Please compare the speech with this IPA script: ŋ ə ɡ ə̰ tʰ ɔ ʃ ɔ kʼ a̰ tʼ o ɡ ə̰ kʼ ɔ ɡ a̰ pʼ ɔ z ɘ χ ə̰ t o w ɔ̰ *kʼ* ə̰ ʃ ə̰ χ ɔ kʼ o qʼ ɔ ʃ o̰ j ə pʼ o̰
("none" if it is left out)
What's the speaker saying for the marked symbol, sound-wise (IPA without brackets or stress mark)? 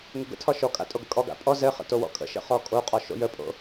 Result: kʼ